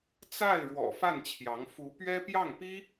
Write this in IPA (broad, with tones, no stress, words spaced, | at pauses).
t͡sa˥˩ɪ̯ ɻwɔ̰˨˩ fa˥˩nt͡ɕʰjɑ˧˥ŋ fu˧˥pɥɛ˥ pjɑ˥˩ŋpi˥